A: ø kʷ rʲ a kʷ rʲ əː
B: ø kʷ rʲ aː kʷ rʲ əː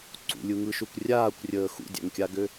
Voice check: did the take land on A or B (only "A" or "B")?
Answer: B